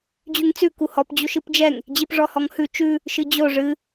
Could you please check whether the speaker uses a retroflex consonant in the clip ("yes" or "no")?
yes